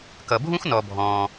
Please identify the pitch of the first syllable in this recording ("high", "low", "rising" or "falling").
low